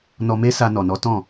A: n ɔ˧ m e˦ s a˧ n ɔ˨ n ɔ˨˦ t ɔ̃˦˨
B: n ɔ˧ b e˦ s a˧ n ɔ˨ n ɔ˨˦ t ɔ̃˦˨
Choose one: A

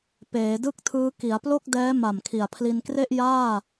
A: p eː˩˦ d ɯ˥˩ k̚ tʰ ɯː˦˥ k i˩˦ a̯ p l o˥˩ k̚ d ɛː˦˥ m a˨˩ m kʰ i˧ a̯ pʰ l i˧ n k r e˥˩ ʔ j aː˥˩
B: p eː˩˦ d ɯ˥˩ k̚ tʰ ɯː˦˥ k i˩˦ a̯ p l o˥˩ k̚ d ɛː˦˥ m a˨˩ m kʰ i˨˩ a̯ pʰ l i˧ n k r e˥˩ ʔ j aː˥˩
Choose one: B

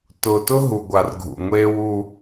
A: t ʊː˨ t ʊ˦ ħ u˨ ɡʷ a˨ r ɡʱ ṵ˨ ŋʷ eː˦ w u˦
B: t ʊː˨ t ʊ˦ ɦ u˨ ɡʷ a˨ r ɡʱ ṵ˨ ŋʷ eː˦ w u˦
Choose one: B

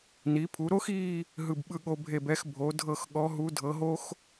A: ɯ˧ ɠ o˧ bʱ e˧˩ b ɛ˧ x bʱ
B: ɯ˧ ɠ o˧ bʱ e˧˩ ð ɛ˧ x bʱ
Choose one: A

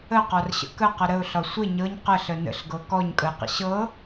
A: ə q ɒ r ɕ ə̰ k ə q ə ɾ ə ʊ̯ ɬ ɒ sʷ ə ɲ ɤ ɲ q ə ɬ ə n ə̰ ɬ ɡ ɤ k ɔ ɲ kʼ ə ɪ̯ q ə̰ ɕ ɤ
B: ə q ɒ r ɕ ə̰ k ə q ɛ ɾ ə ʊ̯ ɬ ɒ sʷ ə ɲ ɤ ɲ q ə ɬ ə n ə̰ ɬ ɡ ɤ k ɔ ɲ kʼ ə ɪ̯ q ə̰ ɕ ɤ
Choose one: A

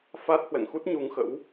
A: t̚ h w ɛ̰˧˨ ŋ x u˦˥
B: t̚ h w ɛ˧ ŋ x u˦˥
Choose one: A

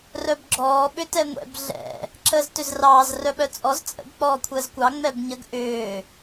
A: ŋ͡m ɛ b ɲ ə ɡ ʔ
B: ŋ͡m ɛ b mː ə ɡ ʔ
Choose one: A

